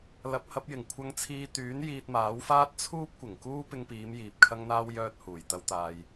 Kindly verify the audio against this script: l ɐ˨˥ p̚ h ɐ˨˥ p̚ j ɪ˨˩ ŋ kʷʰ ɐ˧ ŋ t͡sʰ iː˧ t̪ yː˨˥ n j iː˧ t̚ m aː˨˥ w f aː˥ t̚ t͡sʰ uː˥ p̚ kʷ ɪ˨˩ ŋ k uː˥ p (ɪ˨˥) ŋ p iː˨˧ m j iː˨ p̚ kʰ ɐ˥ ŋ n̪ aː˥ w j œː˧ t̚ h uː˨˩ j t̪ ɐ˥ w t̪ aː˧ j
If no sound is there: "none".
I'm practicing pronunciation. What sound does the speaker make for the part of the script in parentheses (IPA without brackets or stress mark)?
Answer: ɪ˧